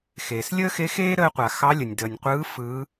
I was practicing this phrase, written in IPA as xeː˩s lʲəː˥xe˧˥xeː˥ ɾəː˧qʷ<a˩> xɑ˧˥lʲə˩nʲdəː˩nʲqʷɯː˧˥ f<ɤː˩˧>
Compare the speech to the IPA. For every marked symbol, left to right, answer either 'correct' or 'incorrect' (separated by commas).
correct, incorrect